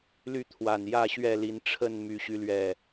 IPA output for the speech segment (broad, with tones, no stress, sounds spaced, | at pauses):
l y˥˨ t̪ʰ w a˨˩ n j ä˥˨ ɕ ɥ ɛ˥˨ l i˨˦ n ʈ͡ʂʰ ə˥˨ n m y˨˦ ɕ y˨˦ l ɥ ɛ˨˩